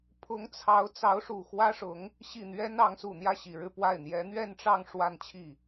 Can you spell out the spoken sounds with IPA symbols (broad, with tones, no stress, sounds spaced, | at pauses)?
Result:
pʰ ʊ˧˥ ŋ t͡sʰ ɑ˧˥ ʊ̯ t͡s ɑ˧˥ ʊ̯ ʂ u˨˩ x w ä˥ ʂ ʊ˧˥ ŋ | ɕ i˥˩ n̪ ɥ ɛ˥ n ɑ˧˥ ŋ s u˨˩ n̪ j ä˥˩ ɕ i˨˩ ɻ ɻ̩˥˧ p w a˥˩ ɪ̯ n̪ j ɛ˧˥ n̪ ɥ ɛ˥˧ n ʈ͡ʂ ɑ˥˧ ŋ ʂ w a˥˧ n t͡ɕʰ i˥˩